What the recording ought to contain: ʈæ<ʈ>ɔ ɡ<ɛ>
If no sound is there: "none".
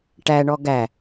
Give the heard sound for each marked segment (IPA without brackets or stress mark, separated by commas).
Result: ɳ, æ